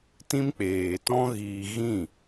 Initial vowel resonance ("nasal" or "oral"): nasal